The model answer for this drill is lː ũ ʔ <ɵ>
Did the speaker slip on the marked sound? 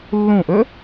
no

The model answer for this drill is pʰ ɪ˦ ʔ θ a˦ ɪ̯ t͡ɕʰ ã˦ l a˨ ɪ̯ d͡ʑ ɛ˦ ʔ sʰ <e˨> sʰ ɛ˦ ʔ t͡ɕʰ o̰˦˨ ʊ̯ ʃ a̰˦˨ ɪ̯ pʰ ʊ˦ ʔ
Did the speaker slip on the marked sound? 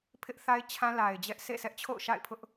yes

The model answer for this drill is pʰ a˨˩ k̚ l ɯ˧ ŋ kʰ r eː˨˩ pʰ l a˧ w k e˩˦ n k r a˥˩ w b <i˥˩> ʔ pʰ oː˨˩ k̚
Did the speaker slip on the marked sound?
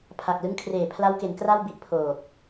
yes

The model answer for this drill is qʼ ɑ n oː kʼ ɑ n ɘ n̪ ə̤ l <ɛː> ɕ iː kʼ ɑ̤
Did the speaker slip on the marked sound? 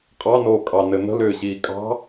yes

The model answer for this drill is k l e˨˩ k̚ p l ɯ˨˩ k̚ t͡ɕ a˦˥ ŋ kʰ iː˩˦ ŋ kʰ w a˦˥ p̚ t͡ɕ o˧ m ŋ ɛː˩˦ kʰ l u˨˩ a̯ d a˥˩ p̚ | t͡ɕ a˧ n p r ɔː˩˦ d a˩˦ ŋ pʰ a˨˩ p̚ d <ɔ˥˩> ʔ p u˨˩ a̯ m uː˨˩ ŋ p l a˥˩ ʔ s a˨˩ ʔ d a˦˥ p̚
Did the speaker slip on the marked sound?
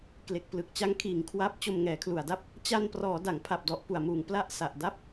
yes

